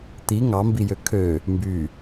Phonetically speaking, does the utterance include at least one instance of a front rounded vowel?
yes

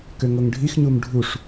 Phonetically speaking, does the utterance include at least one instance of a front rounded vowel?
yes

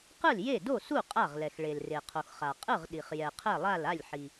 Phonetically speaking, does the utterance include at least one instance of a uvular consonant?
yes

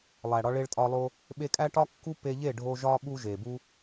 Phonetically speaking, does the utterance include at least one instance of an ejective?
yes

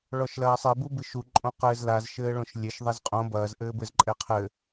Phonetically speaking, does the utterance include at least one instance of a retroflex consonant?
yes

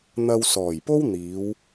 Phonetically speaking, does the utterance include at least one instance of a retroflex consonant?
no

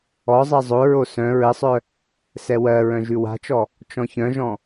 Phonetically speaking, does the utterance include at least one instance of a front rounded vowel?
yes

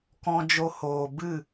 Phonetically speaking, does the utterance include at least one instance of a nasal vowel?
yes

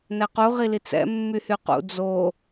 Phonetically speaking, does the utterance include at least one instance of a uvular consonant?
yes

